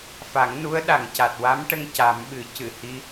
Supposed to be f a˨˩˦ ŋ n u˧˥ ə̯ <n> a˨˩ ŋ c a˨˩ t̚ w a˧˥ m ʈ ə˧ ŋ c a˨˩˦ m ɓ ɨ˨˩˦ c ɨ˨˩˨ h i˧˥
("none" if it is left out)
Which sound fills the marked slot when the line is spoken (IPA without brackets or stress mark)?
ɗ